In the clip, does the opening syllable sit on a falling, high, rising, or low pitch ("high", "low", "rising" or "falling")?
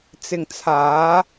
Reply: low